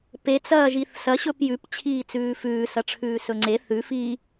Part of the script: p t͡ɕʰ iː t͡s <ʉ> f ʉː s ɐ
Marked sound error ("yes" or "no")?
yes